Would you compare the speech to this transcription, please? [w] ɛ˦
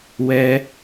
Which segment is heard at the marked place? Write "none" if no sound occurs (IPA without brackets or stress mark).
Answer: w